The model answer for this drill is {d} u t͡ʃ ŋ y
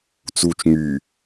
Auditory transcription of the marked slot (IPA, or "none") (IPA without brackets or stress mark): t͡s